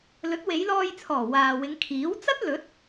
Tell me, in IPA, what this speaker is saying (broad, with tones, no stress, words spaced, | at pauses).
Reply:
lɵ˨˥t̚we˨˧jlɔː˧jt͡sʰɔː˨˩ waː˨wɪ˨˧ŋ kʰiː˨˥w t͡sɐ˥t̚lɵ˨˥t̚